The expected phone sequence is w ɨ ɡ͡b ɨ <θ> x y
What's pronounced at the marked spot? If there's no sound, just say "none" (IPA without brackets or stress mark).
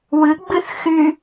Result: θ